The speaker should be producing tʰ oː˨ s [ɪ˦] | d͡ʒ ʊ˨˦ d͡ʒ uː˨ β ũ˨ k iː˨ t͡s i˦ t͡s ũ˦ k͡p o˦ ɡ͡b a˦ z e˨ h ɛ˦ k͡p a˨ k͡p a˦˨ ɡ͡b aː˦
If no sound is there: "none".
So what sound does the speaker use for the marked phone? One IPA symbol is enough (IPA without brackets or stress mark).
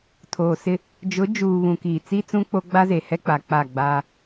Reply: ɪ˦